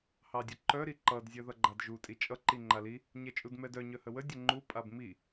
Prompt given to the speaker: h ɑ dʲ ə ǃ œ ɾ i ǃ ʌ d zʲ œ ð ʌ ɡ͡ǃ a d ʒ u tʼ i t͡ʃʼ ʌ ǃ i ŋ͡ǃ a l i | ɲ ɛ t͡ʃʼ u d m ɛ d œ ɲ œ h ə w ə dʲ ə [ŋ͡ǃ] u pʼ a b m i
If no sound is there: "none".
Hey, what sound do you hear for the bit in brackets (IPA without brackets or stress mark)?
ŋ͡ǃ